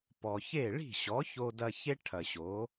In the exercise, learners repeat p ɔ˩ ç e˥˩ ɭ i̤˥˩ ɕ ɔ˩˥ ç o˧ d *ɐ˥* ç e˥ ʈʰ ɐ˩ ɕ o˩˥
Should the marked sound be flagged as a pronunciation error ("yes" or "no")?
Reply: yes